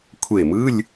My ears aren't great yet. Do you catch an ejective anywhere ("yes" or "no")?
no